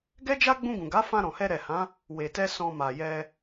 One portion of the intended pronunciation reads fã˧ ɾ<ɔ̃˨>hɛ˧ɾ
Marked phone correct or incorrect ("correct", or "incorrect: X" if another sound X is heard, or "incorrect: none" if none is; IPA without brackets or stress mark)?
correct